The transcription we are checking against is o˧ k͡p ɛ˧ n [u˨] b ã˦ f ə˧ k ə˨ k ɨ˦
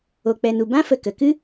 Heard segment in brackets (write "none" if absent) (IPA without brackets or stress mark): u˧